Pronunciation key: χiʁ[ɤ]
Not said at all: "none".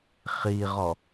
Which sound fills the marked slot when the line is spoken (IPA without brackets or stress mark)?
ɔ